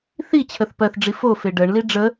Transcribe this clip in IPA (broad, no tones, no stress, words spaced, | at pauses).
θi t͡ɕʰəθpɜθɖ͡ʐi fofe ɖɜɳli ɖ͡ʐə